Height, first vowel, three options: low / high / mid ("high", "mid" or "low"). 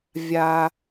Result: low